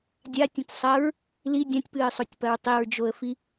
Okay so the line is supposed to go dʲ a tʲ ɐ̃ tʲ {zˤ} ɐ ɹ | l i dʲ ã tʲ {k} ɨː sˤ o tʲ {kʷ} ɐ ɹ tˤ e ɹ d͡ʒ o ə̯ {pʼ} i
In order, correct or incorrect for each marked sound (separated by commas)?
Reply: incorrect, incorrect, incorrect, incorrect